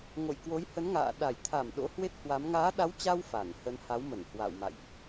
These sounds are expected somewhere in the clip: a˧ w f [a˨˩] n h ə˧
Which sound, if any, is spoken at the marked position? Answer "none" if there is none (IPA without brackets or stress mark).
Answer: a˧˩